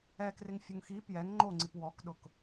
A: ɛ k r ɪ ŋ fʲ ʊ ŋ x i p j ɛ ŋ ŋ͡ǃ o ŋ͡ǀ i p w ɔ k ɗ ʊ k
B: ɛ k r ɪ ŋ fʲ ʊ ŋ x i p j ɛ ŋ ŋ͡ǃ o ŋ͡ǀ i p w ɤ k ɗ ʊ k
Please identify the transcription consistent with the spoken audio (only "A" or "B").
A